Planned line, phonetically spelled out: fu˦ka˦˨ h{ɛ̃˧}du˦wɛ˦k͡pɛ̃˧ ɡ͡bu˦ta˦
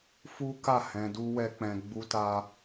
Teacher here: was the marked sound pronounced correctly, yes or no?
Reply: yes